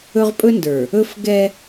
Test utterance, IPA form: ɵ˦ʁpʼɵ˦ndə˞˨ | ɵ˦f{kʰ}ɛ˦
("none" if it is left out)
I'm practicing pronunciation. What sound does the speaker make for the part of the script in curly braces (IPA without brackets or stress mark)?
ɡ